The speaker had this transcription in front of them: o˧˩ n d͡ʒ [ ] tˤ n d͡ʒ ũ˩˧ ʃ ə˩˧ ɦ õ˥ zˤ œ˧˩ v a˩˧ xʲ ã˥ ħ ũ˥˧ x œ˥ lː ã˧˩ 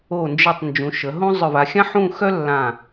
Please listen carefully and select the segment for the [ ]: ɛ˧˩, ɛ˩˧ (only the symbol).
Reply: ɛ˧˩